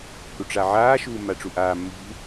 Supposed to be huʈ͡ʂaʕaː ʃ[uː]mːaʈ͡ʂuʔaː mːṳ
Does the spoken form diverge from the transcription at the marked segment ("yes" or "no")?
no